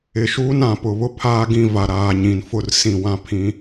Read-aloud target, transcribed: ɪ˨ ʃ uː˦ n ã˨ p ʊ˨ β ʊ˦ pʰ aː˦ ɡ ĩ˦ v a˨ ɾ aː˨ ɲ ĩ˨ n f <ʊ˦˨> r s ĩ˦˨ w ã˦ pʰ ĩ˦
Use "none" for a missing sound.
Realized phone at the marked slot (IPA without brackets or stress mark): ʊ˦˨